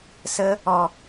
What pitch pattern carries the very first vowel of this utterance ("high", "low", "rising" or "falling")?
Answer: high